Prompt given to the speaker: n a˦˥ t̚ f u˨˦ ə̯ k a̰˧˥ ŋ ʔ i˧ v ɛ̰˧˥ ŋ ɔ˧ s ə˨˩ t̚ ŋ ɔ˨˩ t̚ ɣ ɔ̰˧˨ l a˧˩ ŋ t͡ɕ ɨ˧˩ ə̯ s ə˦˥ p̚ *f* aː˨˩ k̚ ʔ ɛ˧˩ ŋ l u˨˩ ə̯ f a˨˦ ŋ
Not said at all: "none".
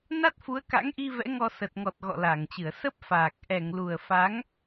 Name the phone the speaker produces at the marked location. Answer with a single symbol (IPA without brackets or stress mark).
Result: f